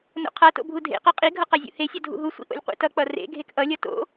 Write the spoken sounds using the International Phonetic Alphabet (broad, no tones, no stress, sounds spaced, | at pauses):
n o̰ qʰ a t o̰ bʱ u dʱ ḛ q a qʼ i ɡʱ ʌ q a zʲ ṵ h e sʲ ʌ dʱ ṵ ɦ u sʷ ḭ ʔ o̰ lʲ qʷ ḭ t ʌ k͡p ʌ r ḛ ɡʱ e k ʔ ʌ lʲ ʌ t o̰